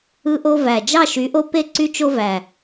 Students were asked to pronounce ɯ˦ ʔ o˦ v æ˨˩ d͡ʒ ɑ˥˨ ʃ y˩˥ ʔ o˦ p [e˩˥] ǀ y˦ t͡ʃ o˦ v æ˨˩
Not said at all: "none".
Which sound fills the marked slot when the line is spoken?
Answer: e˥˨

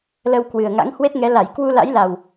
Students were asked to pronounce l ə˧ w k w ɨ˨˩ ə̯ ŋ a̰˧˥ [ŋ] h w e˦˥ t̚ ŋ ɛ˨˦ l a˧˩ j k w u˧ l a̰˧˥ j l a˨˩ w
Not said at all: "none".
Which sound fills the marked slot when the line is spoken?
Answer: ŋ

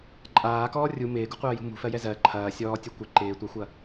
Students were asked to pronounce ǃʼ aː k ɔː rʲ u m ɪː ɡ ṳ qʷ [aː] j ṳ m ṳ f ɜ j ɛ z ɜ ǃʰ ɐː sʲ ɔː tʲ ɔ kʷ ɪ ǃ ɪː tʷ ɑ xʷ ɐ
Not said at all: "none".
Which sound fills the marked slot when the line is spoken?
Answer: ɐː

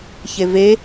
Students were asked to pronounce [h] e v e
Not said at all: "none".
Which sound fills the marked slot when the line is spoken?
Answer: ç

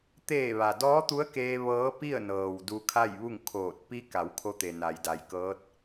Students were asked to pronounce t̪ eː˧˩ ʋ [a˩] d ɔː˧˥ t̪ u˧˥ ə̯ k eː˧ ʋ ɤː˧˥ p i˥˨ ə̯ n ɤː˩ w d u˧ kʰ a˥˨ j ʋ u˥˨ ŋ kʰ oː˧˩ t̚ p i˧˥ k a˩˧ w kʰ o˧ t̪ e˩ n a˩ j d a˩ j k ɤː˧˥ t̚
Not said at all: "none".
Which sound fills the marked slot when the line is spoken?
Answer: a˩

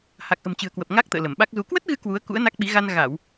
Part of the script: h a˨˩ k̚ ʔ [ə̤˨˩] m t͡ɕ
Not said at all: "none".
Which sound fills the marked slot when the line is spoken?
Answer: ə̤˨˩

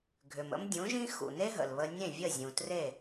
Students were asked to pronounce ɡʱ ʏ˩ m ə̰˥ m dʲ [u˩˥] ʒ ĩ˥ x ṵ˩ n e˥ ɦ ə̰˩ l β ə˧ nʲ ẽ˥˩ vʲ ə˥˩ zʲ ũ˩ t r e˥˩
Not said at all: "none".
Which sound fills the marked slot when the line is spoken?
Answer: ũ˩˥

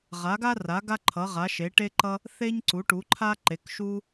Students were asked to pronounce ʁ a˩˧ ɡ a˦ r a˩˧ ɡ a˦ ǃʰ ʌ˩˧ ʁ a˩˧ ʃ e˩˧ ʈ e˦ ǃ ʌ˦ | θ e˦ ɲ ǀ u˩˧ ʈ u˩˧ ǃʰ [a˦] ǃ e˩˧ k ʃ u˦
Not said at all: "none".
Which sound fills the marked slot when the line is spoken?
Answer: a˦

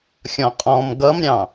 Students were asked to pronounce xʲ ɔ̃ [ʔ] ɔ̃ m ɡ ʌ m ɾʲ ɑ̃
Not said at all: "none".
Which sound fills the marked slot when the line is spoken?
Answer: qʼ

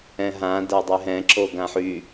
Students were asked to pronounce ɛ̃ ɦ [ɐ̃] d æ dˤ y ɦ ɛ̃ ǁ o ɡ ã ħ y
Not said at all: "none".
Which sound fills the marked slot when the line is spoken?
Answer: ã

